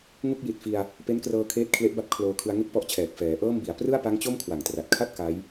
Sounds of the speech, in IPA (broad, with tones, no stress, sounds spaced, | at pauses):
ŋ u˥˩ k̚ j i˨˩ t̚ f i˧ a̯ | p e˦˥ n k r ɤː˧ kʰ eː˦˥ t̚ kʰ l e˦˥ ʔ b a˦˥ p̚ kʰ l oː˧ kʰ ɯ˧ a̯ ŋ e˥˩ k̚ p ɔ˦˥ ʔ t͡ɕʰ ɛː˨˩ k̚ f ɛː˩˦ ʔ ɤː˥˩ m b i˩˦ a̯ p r ɯ˥˩ a̯ p a˦˥ ŋ t͡ɕ o˥˩ m kʰ w a˨˩ ŋ t r a˨˩ t̚ kʰ a˥˩ t̚ k a˦˥ j